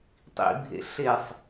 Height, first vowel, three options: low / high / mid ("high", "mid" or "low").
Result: high